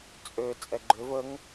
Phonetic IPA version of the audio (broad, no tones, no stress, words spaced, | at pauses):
t͡sʼø t͡sʼɛɡ͡ǃøv əŋ